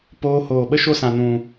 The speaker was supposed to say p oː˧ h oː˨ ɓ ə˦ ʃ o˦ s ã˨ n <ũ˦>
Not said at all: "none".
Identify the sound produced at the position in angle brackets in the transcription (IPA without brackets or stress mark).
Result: ũ˨